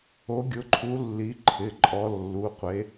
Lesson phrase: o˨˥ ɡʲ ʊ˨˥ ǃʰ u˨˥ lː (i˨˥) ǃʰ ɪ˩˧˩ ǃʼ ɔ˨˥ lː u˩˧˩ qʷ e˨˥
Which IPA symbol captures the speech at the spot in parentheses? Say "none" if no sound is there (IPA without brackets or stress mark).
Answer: i˨˥